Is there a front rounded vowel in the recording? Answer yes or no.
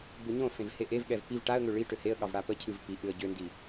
yes